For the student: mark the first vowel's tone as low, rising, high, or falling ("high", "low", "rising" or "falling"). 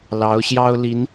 rising